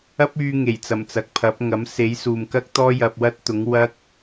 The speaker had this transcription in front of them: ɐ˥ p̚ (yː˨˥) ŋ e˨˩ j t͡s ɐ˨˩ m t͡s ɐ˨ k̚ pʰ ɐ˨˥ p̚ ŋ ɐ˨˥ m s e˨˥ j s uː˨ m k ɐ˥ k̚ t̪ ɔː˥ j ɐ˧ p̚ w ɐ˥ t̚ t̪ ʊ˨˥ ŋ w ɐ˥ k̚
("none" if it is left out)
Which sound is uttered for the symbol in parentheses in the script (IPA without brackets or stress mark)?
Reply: yː˧